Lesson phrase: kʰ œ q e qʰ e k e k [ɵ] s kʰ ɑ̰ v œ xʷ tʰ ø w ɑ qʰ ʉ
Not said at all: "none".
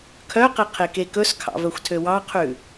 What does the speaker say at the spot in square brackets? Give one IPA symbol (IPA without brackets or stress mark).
ɵ